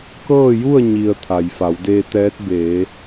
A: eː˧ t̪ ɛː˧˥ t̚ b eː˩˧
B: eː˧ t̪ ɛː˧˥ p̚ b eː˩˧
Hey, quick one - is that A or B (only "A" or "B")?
A